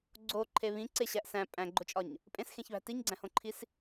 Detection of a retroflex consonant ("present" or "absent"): absent